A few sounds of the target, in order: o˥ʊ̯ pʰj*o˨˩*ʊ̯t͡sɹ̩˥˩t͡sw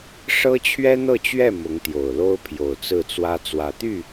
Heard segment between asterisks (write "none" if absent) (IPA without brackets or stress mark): o˨˩